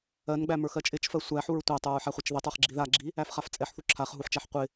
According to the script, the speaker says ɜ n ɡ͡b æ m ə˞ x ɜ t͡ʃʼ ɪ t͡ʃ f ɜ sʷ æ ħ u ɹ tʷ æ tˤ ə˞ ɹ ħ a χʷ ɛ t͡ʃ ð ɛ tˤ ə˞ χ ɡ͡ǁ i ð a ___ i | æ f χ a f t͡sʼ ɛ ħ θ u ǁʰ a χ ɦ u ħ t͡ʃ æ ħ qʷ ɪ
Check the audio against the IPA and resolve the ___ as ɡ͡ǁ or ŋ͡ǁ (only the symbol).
ɡ͡ǁ